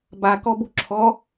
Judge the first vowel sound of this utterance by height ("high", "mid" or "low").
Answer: low